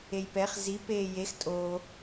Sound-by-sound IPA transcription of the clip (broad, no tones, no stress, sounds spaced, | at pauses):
e j p ɛ χ z i p eː j e x tʼ o